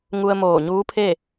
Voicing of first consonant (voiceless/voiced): voiced